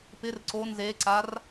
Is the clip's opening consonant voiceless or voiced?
voiceless